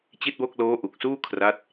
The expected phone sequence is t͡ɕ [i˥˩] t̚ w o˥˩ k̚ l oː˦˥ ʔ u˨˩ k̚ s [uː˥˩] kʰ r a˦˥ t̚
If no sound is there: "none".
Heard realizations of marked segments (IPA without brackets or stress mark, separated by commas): i˥˩, uː˥˩